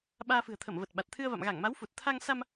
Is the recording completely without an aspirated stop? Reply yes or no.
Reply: no